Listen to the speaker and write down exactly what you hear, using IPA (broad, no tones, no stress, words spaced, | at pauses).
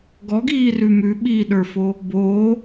ɡɔɡiːrʉ mʉɓiːɗə˞fo | boː